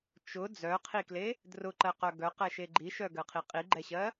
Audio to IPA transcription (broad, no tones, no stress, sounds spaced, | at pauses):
t͡ʃ ʊ d͡z œ qʰ i k l e | d r ʊ ǃ ɜ q œ ɡ œ q ɛ ʃ e ɡ͡ǃ i ʃ œ ɡ ɜ qʰ i qʼ i ɡ͡ǃ ɛ ɕ ɜ